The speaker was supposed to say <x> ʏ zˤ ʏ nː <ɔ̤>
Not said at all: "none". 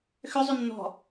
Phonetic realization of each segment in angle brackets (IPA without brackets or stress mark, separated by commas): x, ɔ̤